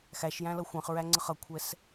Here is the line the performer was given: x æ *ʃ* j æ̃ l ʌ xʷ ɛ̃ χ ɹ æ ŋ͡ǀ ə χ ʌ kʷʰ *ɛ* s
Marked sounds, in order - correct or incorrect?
correct, correct

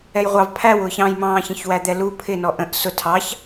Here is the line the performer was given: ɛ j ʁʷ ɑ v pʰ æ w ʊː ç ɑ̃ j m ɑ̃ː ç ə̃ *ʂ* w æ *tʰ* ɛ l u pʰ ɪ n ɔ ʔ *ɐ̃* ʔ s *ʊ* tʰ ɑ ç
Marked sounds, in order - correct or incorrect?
incorrect, incorrect, incorrect, correct

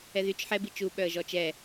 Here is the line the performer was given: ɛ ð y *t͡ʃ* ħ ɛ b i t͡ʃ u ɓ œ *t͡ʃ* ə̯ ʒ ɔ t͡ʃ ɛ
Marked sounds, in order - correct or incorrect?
correct, incorrect

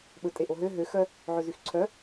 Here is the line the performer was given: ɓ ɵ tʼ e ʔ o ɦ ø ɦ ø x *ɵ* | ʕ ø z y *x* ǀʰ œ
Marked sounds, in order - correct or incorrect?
incorrect, correct

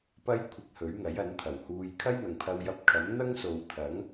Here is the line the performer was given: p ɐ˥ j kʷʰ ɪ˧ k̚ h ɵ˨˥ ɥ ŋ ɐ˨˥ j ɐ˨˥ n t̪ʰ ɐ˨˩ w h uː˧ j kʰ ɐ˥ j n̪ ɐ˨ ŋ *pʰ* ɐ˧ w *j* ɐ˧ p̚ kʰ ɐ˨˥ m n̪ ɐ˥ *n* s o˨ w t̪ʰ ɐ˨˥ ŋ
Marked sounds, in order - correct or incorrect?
correct, correct, incorrect

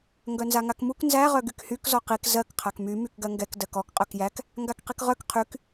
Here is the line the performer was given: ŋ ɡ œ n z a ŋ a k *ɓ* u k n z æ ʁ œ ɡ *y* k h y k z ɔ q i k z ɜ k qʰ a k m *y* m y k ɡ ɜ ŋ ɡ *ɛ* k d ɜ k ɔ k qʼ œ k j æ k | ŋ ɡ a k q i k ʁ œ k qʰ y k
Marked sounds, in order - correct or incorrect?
incorrect, correct, correct, correct

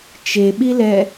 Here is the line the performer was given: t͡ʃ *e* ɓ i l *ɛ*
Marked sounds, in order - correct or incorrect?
correct, correct

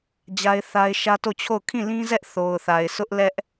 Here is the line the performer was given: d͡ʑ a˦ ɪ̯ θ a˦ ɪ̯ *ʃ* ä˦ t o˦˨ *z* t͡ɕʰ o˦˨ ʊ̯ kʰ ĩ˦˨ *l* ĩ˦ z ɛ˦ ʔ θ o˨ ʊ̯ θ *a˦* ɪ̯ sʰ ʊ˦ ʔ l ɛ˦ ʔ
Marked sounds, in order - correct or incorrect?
correct, incorrect, correct, incorrect

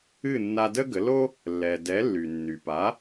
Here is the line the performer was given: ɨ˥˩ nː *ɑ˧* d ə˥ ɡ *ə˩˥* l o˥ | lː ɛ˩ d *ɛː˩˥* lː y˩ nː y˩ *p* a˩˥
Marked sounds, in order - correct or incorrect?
incorrect, correct, incorrect, correct

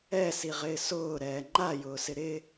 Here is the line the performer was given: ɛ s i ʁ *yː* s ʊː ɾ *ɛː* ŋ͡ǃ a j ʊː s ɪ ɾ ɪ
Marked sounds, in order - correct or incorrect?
incorrect, correct

